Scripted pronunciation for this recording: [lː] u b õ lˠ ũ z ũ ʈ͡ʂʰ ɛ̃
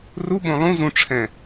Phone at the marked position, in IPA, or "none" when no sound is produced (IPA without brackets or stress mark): r